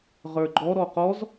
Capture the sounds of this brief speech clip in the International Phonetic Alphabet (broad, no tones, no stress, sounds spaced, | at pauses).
ʁ ə˞ ɡ͡ǃ ɔ ɾ ɔ q ɔ z